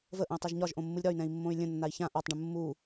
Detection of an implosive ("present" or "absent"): absent